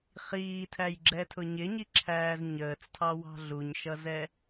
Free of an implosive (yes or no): yes